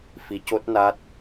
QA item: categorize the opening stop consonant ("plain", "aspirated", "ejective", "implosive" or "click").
plain